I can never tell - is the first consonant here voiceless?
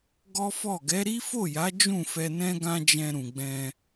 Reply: no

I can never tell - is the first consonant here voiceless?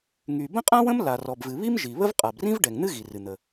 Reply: no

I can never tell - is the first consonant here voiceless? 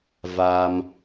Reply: no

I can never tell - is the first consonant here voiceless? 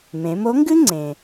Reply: no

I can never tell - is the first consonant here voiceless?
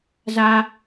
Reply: no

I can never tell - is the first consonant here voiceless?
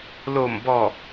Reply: no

